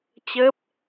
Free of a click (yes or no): yes